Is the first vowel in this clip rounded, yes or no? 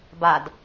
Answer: no